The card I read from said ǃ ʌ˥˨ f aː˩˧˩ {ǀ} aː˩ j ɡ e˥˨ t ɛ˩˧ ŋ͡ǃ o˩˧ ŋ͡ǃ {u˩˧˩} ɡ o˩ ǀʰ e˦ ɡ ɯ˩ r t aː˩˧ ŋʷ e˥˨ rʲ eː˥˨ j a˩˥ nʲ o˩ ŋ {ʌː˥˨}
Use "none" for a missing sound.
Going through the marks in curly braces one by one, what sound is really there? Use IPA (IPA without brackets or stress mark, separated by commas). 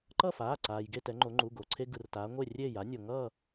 ǀ, u˩˧˩, ʌː˥˨